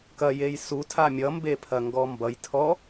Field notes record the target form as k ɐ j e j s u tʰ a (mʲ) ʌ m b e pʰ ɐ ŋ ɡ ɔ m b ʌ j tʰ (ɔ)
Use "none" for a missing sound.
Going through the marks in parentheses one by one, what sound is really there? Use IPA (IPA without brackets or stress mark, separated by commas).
mʲ, ɔ